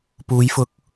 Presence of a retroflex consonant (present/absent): absent